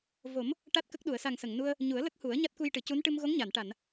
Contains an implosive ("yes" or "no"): yes